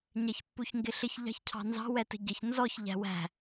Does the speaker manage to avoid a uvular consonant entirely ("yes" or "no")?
yes